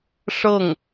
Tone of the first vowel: falling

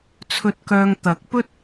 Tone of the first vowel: low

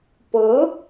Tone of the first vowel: rising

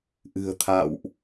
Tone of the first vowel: low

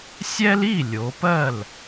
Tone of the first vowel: high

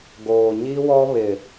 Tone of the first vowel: low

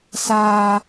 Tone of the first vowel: high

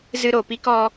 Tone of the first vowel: high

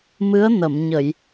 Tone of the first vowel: rising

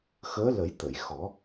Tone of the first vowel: rising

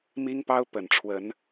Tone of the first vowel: high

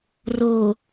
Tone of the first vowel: low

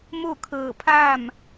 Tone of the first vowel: falling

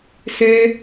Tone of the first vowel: high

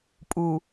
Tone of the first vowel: low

